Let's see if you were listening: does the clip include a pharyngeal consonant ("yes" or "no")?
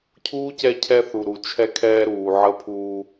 yes